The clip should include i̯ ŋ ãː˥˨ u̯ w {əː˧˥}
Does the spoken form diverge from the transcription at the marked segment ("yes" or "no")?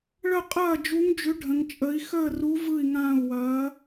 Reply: yes